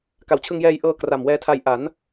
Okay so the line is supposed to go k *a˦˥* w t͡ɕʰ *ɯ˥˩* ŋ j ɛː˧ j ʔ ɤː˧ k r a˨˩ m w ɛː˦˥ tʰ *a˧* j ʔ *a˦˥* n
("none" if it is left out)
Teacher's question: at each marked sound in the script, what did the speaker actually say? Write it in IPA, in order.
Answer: a˨˩, ɯ˧, a˧, a˩˦

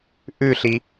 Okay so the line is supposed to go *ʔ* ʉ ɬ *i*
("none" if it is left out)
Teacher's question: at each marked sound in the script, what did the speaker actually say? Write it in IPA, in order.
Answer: ʔ, i

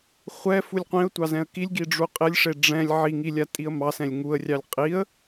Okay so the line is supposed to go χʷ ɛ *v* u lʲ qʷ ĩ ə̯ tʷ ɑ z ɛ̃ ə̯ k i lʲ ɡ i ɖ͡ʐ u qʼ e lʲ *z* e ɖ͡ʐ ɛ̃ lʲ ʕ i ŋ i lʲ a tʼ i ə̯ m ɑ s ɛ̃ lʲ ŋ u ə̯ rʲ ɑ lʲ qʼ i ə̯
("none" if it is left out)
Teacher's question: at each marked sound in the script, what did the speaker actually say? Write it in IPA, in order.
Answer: f, ʂ

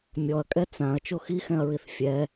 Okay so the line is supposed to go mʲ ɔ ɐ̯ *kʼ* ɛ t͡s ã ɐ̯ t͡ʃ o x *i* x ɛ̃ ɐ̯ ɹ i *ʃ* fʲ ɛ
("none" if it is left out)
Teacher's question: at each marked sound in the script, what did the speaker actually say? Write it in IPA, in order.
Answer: kʼ, i, θ

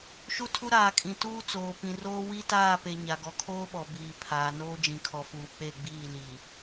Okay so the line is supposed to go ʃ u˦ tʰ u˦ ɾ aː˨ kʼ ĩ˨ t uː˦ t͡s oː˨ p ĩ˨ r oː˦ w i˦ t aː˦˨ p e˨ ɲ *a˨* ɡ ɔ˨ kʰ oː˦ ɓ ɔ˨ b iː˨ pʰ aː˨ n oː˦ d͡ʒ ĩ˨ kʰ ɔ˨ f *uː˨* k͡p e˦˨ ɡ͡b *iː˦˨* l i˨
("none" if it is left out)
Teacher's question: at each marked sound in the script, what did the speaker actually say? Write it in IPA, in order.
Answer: a˨, uː˨, iː˦˨

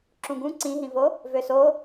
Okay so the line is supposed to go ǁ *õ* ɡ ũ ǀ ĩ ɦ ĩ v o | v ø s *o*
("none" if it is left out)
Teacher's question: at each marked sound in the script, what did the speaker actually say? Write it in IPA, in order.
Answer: ũ, o

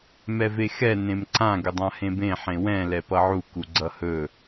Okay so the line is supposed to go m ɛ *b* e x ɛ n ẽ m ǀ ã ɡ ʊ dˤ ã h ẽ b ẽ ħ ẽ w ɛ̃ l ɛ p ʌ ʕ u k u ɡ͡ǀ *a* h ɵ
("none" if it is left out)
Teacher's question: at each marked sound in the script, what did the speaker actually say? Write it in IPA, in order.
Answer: v, ʌ

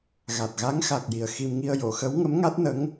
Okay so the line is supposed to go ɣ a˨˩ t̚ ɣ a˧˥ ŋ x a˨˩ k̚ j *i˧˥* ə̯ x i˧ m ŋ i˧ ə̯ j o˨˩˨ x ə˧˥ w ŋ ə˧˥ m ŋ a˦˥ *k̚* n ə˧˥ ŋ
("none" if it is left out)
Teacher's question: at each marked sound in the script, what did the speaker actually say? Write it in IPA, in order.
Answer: i˨˩, t̚

